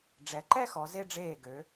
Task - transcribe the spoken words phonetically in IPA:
ɖ͡ʐɛ˩˧ǃɛ˥˧xɔ˩˧ ze˧ɖ͡ʐeː˧˩ɡø˩˧

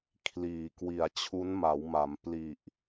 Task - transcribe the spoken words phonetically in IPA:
kʰliː˩˦kwi˨˩a̯ t͡ɕʰu˦˥nma˩˦wma˩˦m pli˨˩ʔ

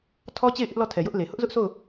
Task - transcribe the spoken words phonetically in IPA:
tʰɔ˦t͡ɕe˦˨ɪ̯ ʔɪ˦ʔlɔ˦˨ tʰɛ˨jʊ˦ʔle˨ hʊ˦ʔzʊ˦ʔso˦˨ʊ̯

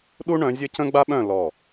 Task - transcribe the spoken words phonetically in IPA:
ɗu˦ɳœ̃˨˦ zʲə˦cə̃˦ɡ͡ba˦ɓœ̃˦˨ lɔ˦˨

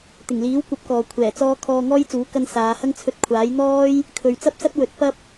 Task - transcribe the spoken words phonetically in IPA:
t̪ɪ˨˩ŋliː˨˥wkʷɐ˨˥p̚ kɔː˨kʷʰɛː˨˩t͡sɔː˥ kʰɔː˧ŋɔː˥j t͡suː˨˥kɐ˧n saː˨˧hɐ˥ŋ t͡sʰɵ˧t̚kʷʰaː˨˥j n̪ɔː˥j | kʰɵ˨ɥt͡sɐ˥p̚sɐ˥t̚ wɵ˨˥t̚pɐ˥p̚

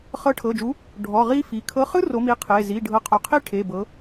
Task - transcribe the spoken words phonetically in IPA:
χɤ˨˦ʈʰɤ˩˧˩d͡ʒu˨˦ | ɖʱɔ˩˧˩ʁi˦˥ fi˩˧˩ kʰɤ˨˦χɯ˦˥ ro˨˦mi˨˦qʰe˩˧˩ zi˩˧˩ ɖʱɤ˨˦qʰo˩˧˩ qʰi˦˥ ʈʰe˩˧˩ bɤ˨˦

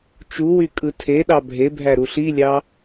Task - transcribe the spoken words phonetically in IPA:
t͡ʃuwy kʼɯtʰeɗɑ bʱebʱæ ɾuɬilʲɑ

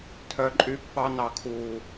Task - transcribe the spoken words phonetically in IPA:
tʰœ˨ǃʼy˧ pːɑ˧nɑ˨kʰuː˨

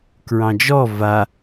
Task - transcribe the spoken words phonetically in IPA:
kɹɑ̃d͡ʒɔ va

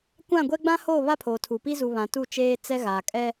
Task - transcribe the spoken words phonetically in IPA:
kʷã˦˨ɡʷɛ˦ ɡ͡bã˦hoː˦˨ βa˦pʰoː˨tʰu˨pi˦ zu˨βã˨ tu˦˨ t͡ʃeː˦ t͡sɛ˦ɣaː˨ kʼɛ˦

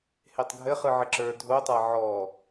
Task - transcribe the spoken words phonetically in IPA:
hetˤɡʱɘ χɯʕɘǁə˞ dʱotˤa ʕɔ

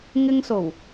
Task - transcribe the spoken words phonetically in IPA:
ŋɪ˧ŋso˨˩w

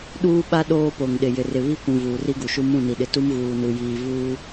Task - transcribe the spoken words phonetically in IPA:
ɗuː˦ɓa˦ ɗoː˦po˨ŋ ɗɪ˨jɪ˨rɪ˨ βi˦kʷũ˨ vuː˨ri˦ɡu˨ʃu˦ mũ˦˨ni˨ɗɪ˨ tu˦mɣuː˨nu˨ jiː˨ vuː˦

